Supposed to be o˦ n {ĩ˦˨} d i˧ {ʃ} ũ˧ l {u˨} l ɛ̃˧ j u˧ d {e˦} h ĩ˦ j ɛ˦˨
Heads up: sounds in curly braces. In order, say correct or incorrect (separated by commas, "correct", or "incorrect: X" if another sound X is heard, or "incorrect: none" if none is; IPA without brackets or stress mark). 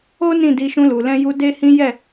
correct, correct, correct, correct